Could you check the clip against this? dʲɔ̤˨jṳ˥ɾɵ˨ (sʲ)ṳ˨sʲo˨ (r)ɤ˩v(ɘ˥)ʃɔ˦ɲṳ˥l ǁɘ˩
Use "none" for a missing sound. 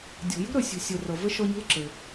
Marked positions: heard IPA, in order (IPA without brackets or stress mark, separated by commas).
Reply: sʲ, r, ɘ˥